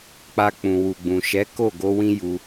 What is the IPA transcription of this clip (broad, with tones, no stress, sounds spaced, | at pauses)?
k͡p a˧ k͡p ũ˨ w u˨ ɡ͡b ũ˨ ʃ ɛ˨˦ k o˦˨ ɡ o˧ w ĩ˧ j u˧